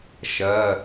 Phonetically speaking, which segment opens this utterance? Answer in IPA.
ʃ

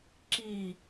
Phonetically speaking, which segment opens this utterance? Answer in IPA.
ǁ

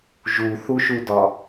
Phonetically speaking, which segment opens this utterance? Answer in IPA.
ʒ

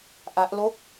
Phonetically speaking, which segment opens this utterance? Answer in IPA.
ʔ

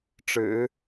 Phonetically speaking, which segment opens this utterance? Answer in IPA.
ʈ͡ʂ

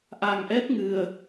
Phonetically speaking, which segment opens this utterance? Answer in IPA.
ʔ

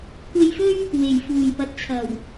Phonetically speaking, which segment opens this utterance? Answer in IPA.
kʷ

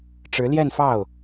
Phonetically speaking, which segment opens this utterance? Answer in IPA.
ʈ͡ʂ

